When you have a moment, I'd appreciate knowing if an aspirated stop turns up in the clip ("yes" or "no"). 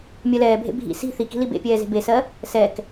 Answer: no